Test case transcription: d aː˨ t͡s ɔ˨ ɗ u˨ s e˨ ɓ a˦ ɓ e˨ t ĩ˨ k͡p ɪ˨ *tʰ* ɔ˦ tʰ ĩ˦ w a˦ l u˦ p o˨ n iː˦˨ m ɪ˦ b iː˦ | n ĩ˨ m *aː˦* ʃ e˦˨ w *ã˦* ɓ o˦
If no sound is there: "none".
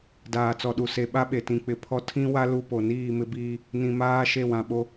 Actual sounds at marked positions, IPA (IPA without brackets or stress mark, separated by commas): pʰ, aː˦, ã˨